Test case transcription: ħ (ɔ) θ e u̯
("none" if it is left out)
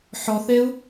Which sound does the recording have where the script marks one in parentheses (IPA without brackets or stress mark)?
ɔ